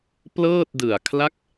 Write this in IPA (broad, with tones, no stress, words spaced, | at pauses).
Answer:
plɤː˥˩t̚dɯ˨˩a̯kʰla˥˩k̚